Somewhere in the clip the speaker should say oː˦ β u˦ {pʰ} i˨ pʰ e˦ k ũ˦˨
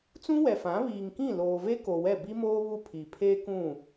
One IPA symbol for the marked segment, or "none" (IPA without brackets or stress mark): pʰ